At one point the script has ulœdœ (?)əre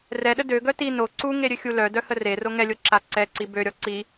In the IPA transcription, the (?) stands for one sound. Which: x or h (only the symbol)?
h